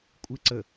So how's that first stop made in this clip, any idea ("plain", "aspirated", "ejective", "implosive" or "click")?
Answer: ejective